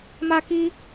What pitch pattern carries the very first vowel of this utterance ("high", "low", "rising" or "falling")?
high